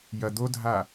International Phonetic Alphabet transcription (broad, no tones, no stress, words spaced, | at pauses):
jɐ d̪odʱa